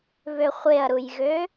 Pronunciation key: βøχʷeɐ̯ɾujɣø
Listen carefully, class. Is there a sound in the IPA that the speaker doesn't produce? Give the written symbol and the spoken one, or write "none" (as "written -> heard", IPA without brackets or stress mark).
none